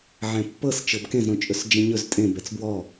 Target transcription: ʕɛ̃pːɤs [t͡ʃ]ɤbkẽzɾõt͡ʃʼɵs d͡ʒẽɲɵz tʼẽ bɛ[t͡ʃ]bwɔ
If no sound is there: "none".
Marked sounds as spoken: t͡ʃ, t͡s

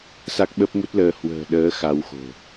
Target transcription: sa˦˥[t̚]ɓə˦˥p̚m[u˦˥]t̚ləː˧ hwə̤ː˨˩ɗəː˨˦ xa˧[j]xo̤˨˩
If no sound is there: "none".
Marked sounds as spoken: k̚, u˦˥, w

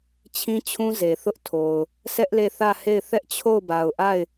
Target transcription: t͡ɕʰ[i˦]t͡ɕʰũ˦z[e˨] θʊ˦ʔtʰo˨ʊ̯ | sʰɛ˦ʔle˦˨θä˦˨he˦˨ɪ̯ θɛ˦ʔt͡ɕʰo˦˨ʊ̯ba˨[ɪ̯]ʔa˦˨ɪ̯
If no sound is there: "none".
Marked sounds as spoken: ĩ˦, e˨, ʊ̯

